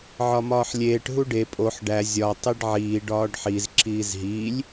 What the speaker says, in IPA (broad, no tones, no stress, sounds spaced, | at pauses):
ʕ ɒ m ɒː ħ lʲ eː ʈ ɦ u ɖ e pʼ o ħ ɖ æ zʲ ɒ tˤ i ɖ ʕ iː ɖ ɒː ɖ ħ i z ǁ iː z ɦ iː lʲ